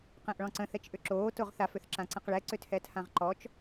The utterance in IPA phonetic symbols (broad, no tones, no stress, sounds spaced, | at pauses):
q ɛ̃ ʔ ɭ ɔ̃ ǀ ə̃ θ ɛ t͡ʃ ʔ ʏ ǁ oː t o ʁ θ a f ʏ θ ǁ ã ǀ ə̃ q ɭ ɛ ǀ ʏ tʰ ɛ tʰ ã ʁ ǃ ɔ t͡ʃ